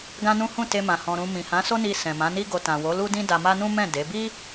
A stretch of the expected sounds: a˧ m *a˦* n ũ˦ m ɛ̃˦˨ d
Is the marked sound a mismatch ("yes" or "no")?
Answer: no